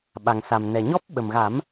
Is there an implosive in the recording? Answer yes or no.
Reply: yes